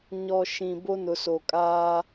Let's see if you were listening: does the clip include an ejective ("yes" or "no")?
yes